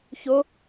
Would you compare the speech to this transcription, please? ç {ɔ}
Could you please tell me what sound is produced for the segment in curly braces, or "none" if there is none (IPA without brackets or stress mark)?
o